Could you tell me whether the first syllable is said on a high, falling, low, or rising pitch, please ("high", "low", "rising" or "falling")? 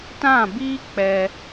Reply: falling